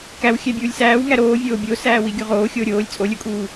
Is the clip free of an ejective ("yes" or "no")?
no